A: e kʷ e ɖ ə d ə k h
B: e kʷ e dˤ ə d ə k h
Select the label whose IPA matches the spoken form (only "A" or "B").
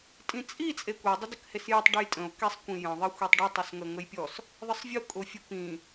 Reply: B